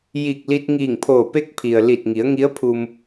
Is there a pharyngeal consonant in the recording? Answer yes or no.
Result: no